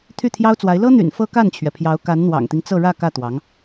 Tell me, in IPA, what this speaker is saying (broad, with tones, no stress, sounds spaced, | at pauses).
t̪ʰ y˥˩ t̪ʰ j ɑ˥ ʊ̯ t͡s w a˧˥ ɪ̯ l ɤ˥ n̪ y̰˨˩ n f ɤ˥ k a˥˩ n t͡ɕʰ ɥ ɛ˩ pʰ j ɑ˧˥ ʊ̯ k a˧˥ n n̪ w ɑ̰˨˩ ŋ t̪ i˦ ŋ t͡s ɤ˥˧ ɻ ä˥˧ k ä˥˩ t̪ w ɑ˧˥ ŋ